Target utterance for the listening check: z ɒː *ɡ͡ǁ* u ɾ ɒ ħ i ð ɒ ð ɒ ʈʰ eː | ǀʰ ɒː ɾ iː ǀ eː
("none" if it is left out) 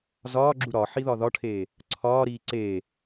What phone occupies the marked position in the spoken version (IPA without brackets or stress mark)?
ɡ͡ǁ